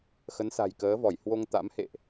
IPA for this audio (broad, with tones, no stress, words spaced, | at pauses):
xə˨˦nsa̤˨˩j kəː˨˦vɔ˧˩j hwo˧ŋt̪a̰˧˥mhḛ˧˨ʔ